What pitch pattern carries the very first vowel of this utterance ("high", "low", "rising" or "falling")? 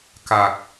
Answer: low